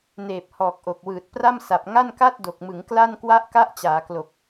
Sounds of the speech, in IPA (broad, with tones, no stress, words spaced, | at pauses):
neː˨˩p̚hɔː˨˩k̚ ʔo˨˩k̚wɯː˨˩t̚pra˥˩m sa˨˩p̚ŋa˥˩n ka˥˩t̚do˨˩k̚mɯ˩˦ŋ kla˥˩n kwa˦˥ʔka˦˥ʔt͡ɕaː˩˦klo˨˩k̚